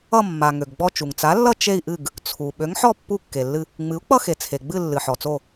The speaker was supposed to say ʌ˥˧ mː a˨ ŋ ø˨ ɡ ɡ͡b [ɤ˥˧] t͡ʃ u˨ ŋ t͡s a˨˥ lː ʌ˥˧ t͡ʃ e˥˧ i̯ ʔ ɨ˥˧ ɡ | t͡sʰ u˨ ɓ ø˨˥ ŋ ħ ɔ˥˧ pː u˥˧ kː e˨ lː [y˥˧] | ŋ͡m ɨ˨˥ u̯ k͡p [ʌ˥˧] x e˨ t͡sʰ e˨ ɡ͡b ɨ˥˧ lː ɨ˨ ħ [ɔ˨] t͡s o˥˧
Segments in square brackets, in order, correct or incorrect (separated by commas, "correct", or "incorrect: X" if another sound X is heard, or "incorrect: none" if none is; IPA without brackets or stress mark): incorrect: ɔ˥˧, incorrect: ɨ˥˧, correct, correct